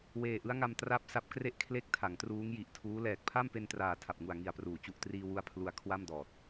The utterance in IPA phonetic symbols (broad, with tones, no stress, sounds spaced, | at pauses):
w eː˨˩ ʔ ɯ˦˥ a̯ ŋ a˧ m t r a˦˥ p̚ s a˦˥ p̚ k r e˥˩ ʔ kʰ l e˥˩ k̚ tʰ a˩˦ ŋ t r uː˦˥ ŋ j i˨˩ ʔ tʰ uː˦˥ l ɛː˨˩ k̚ pʰ a˥˩ m p e˧ n t r aː˨˩ tʰ a˨˩ p̚ ŋ u˨˩ a̯ ŋ i˨˩ a̯ p r uː˩˦ t͡ɕ u˨˩ ʔ t r iː˧ w u˧ a̯ pʰ l u˧ a̯ kʰ w a˥˩ m d ɔː˨˩ t̚